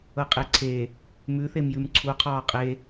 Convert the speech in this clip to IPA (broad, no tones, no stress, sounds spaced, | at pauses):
ɤ qʼ e ǀʰ e | m ʉ θ e m j ʉ m ǀʰ u qʰ ɔː qʼ e